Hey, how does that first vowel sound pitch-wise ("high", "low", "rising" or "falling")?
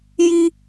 high